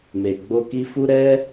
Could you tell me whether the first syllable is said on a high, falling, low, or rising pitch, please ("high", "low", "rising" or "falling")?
low